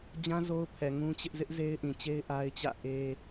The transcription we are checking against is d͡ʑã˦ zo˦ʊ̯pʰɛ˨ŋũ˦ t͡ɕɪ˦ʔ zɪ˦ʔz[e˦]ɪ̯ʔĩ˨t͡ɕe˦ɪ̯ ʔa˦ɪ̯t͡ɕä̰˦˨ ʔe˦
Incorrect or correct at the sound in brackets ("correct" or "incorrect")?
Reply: correct